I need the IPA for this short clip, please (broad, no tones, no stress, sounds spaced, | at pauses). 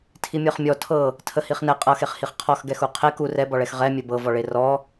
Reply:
tʰ i mʲ ɤ χ mʲ ɔ tʰ ɤ | tʰ ə h i χ n ɛ qʼ ɤ x e χ h i χ qʰ ɔ x ɡ ɛ x u qʰ e k u r ɛ b ɔ ɭ ɛ x ʁ ɛ mʲ ə b ɤ v ɔ ɭ e r ɔ